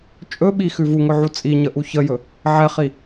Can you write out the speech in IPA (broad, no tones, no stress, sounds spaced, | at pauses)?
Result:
t͡ʃʼ ɵ ɓ i x ʉ v u ŋ ɵ ʕ u t͡sʼ i ɲ ə ʔ u ç ə j ɵ | ʕ ɛ χ i